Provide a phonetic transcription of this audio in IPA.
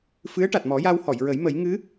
f ɨ˧˥ ə̯ ʈ a˨˩ t̚ m ɔ˨˩˦ j a˧ w h ɔ˨˩˨ j ɹ ə˨˩˦ j m ə˨˩˦ j ŋ ɨ˧˥

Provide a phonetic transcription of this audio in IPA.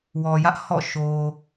w ɔ˨ j ä˦ ʔ h ɔ̰˦˨ ʃ o˨

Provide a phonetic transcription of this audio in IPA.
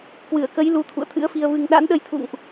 k w ɨ˧˩ ə̯ k ə˨˦ j l u˨˦ t̪ʰ ṵ˧˨ ə̯ t̪ʰ ɨ̰˧˥ ə̯ f i˧ ə̯ v ɨ˧ ŋ ɗ a̰˧˥ n ɗ ə˧ j t̪ʰ ṵ˧˨ ŋ ʔ

